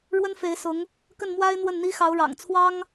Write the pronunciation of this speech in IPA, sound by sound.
ɻ w ə˥ n f e˧˥ ɪ̯ s ʊ˧˥ ŋ | k ə˥˩ n m w a˥ ɪ̯ n̪ w ə˥˩ n n̪ i˥ x ɑ˧˥ ʊ̯ ɻ ɑ̰˨˩ ŋ t͡sʰ w ɑ˥ ŋ

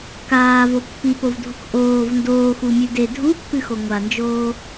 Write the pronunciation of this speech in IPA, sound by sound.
k aː v o pː i p o v dʱ u k ʔ oː v n d oː x u mʲ ʉ d e dʱ u pː ɨ x o ŋʷ a n d͡ʒ oː

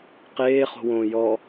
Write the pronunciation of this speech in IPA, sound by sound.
q eː χ o̤ w õː j ɔ

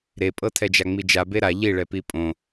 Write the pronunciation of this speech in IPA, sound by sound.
ɾ e pʼ ɤ tʰ ɛ d͡ʒ a ŋ͡m i d͡ʒ a b e ɾ a ʎ i ɭ ɛ p i pʼ õ

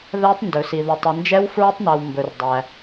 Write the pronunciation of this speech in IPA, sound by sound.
ð æ˦˥ tˤ n d ɵ˨ s i˨ ð o˨ tˤ i˨ n d͡ʒ ɛ˦˥ w f ɹ ɵ˦˥ tˤ n æ˨ w m b ɵ˨ r dˤ æ˨

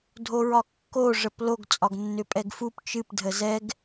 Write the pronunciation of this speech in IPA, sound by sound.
dʱ o ɹ ɒ kː o ʐ ə p l o ɡ t͡sʼ ɒ ɡ nː ʏ pʼ ɛ ɡ f u p t͡ʃ ɨ p dʱ ə z ɛ ɡ

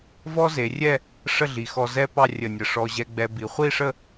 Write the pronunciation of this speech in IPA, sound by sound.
v ɔ˥ z e˩˧ rʲ ɛ˥˧ | ʂ ə˥˧ ɮ i˩˧ x ɔ˧ z ɛ˥ p ɑ˥˧ rʲ ə˧˩ nʲ ə˧˩ ʂ ɔ˧ ʑ ɛ˧ ɡ͡b ɛ˧ b i˩˧ χʷ i˥˧ ʂ ə˥˧

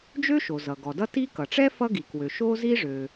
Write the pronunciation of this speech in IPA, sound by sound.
d͡ʒ ø˥ ʃ o˩ z ʌ˩ ɡ ɔ˩ d ʌ˥ t i˥ k ʌ˩ ʈ͡ʂ ɛ˥ f ʌ˥ ɡ i˩ k w ø˩ ʃ o˥ z i˥ ʐ ø˩

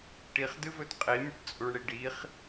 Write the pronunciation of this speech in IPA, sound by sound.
ʈ i χ d ɨ v ɵ d qʼ i mʲ ɨ ʈ t͡sʼ u ɳ ɽ i ɖ i χ

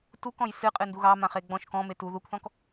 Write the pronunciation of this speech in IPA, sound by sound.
t u k ɔ̃ j s ɨ qʼ ɨ n d u ɣ ɑ m ã χ e ɡ͡b ɔ̃ ʃ k ɔ̃ m e t u ð u k θ ɔ̃ k

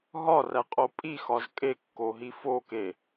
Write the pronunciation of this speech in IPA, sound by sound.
ɦ ɒ r æ qʼ o pʼ i x ɒ z kʼ e kː o ɦ i f o k e

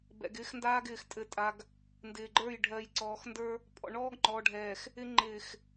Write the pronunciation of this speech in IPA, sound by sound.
b ɛ̰˨ ɡ ɪː˦ x n d aː˦ ɡ ɪː˨ x tʼ ɘ˨ tʼ a˨ ɡ | n d ɪː˨ ɡ͡ǃ ə˞˦˨ j ɖʱ ɜ˨ j ǀ ɔː˨ x n d ə˞˦ | pʼ ɔ̰˨ ɳ ɔː˦ ɡ ŋ͡ǃ ɔː˨ ɖʱ ɛː˨ x | ɪ˦ ŋ͡ǃ ɪː˨ x

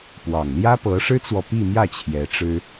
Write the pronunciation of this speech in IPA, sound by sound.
p w ɑ˨˩ ŋ l j ä˥ p ɤ˧˥ ʂ ɻ̩˥ t͡s w ɔ˨ p i˥˧ m j ä˥˩ t͡ɕʰ j ɛ˧˥ ʈ͡ʂ ɻ̩˥

